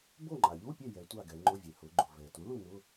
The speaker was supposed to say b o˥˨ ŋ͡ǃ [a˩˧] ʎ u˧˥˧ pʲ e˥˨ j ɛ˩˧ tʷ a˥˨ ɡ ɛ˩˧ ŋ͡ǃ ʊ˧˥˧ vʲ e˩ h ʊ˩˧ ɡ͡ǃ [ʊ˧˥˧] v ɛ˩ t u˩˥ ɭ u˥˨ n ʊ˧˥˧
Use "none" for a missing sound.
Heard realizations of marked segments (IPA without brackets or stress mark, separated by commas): a˩, ʊ˩